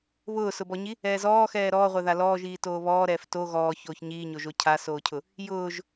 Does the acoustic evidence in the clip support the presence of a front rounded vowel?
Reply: no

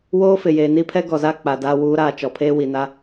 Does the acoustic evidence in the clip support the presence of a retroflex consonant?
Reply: no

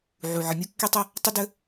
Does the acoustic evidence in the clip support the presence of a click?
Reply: no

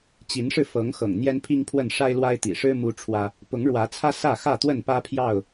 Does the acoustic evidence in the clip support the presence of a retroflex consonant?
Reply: yes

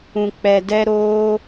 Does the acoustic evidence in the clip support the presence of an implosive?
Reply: no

